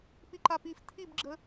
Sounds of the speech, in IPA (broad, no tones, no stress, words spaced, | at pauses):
piǃapif tʰibɡ͡ǁə